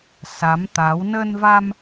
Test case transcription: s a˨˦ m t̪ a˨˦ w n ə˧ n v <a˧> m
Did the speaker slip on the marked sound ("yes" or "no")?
no